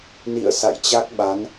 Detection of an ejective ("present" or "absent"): absent